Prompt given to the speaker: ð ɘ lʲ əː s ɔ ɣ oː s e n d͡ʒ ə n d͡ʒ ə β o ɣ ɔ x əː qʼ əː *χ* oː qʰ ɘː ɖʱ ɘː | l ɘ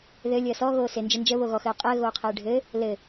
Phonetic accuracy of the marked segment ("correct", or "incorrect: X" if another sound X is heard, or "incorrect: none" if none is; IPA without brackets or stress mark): incorrect: ɣ